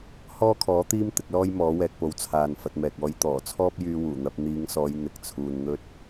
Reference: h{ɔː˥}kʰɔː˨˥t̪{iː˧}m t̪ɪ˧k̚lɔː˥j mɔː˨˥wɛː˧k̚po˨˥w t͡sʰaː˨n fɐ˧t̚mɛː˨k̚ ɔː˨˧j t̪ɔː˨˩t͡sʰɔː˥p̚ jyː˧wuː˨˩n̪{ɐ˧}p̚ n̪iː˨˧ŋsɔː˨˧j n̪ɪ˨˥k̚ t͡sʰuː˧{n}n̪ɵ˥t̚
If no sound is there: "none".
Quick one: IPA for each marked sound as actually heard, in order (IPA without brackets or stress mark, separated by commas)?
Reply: ɔː˥, iː˥, ɐ˧, n